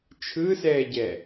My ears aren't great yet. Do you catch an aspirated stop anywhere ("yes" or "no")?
yes